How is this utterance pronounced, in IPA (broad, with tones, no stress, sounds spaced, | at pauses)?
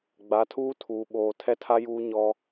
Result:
ɡ͡b a˨˦ tʰ uː˦ tʰ uː˨ ɓ oː˨ tʰ ɛ˦ tʰ a˦ j uː˦ ɲ ɔ˦